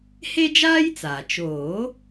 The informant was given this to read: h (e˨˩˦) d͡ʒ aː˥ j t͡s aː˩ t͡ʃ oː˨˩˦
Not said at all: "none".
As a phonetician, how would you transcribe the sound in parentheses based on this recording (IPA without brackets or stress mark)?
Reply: e˥